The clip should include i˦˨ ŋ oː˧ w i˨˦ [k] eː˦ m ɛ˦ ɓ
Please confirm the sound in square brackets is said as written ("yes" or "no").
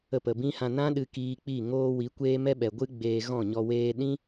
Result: no